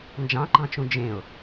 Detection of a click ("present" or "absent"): present